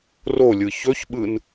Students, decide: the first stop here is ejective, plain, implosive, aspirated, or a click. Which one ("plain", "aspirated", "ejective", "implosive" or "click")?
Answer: implosive